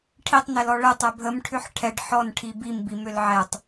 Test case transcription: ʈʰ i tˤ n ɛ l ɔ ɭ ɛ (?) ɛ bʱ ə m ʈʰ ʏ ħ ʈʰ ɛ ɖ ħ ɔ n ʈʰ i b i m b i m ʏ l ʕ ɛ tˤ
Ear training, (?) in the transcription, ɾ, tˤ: tˤ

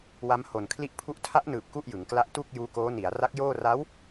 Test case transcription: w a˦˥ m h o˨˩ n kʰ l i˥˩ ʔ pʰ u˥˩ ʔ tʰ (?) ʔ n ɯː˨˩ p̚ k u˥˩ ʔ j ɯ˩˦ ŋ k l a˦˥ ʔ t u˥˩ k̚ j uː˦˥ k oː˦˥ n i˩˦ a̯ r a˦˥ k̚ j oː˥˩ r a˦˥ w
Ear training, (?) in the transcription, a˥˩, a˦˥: a˦˥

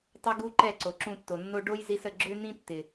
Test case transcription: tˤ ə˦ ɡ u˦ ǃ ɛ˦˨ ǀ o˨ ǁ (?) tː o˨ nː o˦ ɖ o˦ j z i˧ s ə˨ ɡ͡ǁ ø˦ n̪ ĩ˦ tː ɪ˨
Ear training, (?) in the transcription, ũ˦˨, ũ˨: ũ˦˨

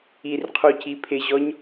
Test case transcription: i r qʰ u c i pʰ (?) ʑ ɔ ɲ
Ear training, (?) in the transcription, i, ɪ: ɪ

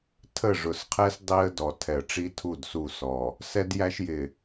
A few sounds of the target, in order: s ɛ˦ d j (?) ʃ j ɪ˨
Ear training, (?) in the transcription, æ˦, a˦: æ˦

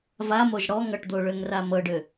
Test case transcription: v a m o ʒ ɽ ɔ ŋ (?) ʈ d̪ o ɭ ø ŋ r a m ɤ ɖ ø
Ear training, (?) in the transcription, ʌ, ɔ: ʌ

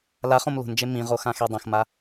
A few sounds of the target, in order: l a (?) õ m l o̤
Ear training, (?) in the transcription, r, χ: χ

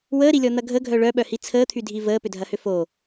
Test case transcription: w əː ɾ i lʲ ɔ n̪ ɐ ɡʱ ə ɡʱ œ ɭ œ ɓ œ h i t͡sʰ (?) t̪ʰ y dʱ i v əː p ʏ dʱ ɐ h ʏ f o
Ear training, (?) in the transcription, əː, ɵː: əː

